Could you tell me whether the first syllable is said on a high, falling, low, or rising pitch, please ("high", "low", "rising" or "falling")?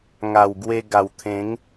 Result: low